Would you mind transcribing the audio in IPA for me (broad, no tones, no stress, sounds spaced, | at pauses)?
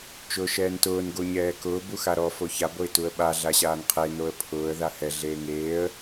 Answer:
t͡ʃ ʊː ʃ ɛː n t ʊː n ɡ o ɲ ɛː k ʊː b u x a ɾ ɔ f o ç a b o ɪ̯ t u ə̯ ɓ a ɮ a ɕ aː n qʰ e n o ə̯ pʰ ʊː ə̯ ð a h ɛ ɮ eː ŋ eː ə̯